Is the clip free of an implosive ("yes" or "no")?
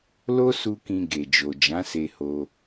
yes